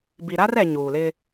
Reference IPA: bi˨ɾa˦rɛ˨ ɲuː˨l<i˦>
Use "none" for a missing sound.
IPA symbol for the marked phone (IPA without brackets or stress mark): ɪ˦